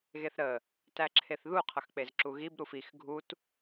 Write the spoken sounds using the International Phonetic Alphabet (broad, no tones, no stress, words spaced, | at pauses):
ɣeθɾə | tæǁʰeθðu qʰʌxk͡pezǁuɣib ɾufix ɡʱut